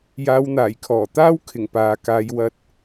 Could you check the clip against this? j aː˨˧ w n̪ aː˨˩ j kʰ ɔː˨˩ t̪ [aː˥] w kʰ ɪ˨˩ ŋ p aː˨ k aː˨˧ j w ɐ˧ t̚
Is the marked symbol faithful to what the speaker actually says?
yes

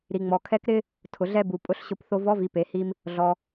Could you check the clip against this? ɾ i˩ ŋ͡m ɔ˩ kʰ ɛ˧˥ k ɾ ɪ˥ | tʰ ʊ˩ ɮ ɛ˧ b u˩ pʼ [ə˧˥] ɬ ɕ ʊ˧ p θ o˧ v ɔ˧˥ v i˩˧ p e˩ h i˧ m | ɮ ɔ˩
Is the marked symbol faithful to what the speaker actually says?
no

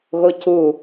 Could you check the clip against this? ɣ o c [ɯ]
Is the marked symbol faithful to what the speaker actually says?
no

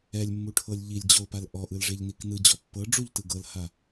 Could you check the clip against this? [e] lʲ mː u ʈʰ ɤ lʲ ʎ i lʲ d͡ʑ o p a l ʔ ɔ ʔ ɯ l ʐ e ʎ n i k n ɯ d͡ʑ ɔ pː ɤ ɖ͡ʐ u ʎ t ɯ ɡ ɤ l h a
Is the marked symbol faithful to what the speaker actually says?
no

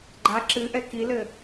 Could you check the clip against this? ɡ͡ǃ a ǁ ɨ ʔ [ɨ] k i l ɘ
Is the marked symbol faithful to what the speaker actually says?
no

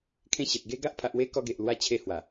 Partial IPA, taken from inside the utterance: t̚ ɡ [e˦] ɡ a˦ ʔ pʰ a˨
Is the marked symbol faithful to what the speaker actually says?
yes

